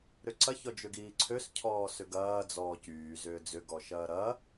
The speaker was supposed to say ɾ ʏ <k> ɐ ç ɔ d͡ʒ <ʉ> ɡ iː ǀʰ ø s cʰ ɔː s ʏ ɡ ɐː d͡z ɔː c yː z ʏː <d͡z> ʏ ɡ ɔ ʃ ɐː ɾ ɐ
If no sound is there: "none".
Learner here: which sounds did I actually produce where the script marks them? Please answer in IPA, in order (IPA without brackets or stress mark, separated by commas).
ǀ, ø, d͡z